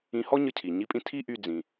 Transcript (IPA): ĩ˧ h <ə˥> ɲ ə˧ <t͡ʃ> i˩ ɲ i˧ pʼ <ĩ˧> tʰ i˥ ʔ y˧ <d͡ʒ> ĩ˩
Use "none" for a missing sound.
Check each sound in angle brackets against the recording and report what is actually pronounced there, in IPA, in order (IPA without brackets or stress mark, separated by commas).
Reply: ɔ˥, cʰ, ĩ˧, d͡z